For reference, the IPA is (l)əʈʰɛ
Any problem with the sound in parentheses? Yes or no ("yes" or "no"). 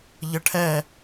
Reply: yes